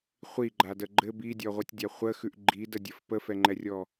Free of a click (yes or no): no